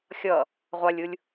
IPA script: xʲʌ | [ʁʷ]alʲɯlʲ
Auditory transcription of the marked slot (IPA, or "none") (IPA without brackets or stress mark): ʁʷ